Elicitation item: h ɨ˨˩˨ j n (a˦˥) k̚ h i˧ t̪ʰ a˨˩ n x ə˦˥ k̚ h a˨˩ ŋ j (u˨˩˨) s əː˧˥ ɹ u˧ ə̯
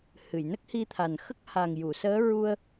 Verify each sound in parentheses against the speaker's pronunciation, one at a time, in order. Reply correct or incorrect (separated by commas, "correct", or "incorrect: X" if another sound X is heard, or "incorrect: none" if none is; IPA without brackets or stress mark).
incorrect: ə˦˥, correct